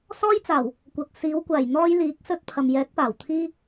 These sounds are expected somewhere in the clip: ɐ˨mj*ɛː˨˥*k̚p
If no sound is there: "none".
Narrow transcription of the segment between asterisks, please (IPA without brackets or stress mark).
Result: ɛː˨˥